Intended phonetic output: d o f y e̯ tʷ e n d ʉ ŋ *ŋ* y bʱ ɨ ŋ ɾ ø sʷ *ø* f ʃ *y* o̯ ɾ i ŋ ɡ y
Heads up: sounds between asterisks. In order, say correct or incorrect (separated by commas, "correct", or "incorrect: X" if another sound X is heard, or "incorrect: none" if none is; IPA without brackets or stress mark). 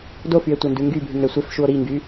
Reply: incorrect: ɡ, incorrect: e, incorrect: u